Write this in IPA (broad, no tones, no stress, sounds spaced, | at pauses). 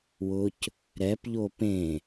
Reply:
w ʊ c | ɾ ɛ p ʎ o p ẽ